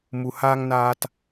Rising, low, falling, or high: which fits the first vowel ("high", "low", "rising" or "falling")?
low